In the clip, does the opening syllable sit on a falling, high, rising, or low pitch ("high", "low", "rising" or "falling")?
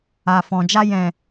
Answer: low